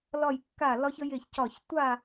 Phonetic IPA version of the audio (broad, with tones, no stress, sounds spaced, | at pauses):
l ɒ˧˩ j kː a˧˩ l ɒ˧ ç ə˧ j e˧˩ ç c ɒ˧˩ ç tʷ a˥˨